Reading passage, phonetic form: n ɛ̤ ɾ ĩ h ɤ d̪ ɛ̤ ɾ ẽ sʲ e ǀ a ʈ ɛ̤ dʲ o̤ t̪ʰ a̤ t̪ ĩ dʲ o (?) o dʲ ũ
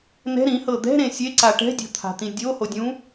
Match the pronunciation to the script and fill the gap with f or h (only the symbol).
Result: h